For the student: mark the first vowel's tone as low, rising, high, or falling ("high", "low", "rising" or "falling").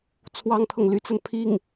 high